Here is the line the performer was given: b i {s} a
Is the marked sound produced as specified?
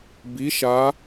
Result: no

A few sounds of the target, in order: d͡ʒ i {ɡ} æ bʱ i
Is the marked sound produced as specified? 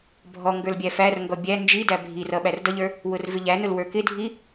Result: no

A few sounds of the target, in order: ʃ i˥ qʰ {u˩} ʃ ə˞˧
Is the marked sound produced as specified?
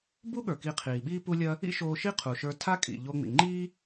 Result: yes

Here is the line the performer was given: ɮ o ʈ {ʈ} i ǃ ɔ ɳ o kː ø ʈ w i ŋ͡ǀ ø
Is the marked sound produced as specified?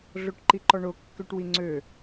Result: no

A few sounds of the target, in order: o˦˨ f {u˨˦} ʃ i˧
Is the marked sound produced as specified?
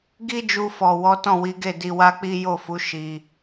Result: yes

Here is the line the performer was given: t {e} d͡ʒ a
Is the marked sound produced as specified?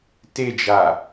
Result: yes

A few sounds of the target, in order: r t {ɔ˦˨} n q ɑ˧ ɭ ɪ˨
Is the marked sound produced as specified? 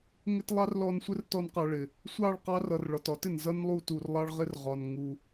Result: no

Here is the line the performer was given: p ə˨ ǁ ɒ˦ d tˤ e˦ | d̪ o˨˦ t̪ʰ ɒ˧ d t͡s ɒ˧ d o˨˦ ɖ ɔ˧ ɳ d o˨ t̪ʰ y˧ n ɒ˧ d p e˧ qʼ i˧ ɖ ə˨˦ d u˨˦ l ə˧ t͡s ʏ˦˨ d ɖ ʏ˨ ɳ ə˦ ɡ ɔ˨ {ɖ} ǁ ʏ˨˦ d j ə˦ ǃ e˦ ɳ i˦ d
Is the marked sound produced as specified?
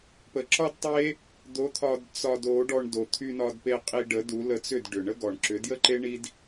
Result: no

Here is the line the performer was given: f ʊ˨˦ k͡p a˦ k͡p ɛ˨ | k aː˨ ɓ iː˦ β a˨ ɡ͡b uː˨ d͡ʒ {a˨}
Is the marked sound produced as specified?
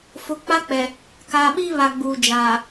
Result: no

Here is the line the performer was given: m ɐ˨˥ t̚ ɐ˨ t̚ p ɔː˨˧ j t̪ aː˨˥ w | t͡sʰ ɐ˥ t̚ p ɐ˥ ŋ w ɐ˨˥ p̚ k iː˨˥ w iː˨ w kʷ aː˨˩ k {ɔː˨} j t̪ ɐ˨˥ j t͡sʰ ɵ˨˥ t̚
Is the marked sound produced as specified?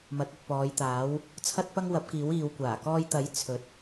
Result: no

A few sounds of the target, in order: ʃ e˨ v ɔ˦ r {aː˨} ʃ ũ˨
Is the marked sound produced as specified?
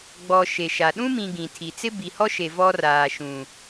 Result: yes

